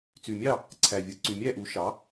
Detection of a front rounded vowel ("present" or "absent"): present